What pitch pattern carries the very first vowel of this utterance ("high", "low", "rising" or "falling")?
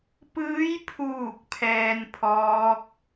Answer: rising